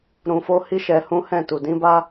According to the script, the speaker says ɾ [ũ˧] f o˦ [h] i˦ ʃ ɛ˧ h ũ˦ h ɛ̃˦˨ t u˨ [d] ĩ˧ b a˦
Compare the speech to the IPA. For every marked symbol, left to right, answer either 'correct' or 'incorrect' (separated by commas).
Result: correct, correct, correct